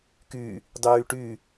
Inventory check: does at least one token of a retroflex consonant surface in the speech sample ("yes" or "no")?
yes